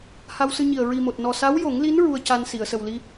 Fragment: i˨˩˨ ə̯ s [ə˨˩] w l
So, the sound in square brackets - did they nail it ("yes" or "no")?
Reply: yes